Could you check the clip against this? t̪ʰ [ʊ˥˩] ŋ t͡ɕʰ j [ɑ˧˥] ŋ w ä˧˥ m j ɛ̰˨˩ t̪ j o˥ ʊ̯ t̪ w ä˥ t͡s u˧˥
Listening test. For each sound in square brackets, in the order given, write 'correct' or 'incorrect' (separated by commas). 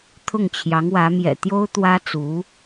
correct, correct